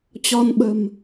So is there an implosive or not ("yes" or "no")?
yes